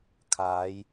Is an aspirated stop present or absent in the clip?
present